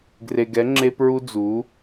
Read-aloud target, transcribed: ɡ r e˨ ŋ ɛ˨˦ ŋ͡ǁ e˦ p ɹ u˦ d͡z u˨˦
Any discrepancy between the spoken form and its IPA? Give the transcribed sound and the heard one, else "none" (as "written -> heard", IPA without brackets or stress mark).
ŋ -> ɡ